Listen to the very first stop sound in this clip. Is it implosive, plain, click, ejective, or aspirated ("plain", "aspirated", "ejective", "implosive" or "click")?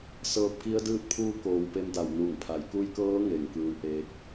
plain